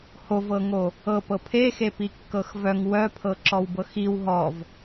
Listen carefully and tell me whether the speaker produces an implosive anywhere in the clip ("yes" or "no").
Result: no